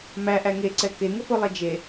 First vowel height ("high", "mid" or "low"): low